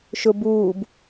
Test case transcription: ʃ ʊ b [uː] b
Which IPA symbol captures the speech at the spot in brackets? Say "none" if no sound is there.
uː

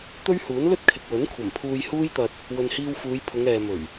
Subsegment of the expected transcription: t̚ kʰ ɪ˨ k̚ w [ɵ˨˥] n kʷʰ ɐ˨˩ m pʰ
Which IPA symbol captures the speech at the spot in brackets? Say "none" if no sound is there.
ɵ˨˥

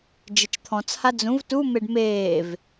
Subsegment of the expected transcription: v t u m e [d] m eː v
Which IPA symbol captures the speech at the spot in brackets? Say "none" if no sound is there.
ɖ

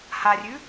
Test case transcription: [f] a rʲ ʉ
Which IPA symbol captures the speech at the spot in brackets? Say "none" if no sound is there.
h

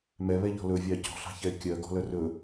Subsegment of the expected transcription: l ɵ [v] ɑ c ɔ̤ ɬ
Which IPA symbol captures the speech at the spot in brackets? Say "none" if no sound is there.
vʲ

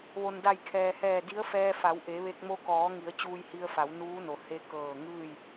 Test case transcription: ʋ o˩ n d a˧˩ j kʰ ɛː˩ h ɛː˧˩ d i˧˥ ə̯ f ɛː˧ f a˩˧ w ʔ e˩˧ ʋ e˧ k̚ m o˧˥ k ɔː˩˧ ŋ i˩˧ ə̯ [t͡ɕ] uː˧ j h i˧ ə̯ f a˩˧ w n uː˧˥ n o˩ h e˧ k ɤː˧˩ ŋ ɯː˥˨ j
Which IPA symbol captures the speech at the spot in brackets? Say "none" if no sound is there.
t͡ɕ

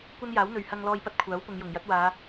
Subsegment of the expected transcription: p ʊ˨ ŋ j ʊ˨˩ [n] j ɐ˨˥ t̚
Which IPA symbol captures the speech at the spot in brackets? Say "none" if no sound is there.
ŋ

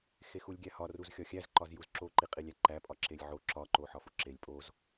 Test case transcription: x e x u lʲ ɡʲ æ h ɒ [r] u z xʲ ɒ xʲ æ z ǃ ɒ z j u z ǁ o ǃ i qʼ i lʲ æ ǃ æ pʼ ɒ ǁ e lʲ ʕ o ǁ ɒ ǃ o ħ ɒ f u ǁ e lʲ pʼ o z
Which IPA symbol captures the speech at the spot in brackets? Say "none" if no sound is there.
r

